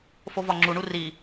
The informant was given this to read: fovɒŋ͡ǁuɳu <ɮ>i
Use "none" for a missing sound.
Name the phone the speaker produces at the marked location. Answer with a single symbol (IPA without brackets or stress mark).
r